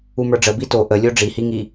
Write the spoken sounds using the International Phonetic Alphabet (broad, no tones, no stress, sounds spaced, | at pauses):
u m ə˞ ɖ͡ʐ ə b i t o ʔ ə lʲ o ɖ͡ʐ i h i ŋ i